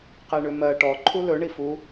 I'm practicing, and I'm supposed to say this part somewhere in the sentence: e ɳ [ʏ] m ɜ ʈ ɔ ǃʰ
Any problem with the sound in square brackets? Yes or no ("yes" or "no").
no